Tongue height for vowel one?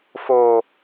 mid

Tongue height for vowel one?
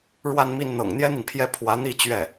low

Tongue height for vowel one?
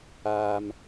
low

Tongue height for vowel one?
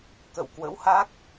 mid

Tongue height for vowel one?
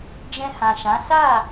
mid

